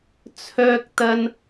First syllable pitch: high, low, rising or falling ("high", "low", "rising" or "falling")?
high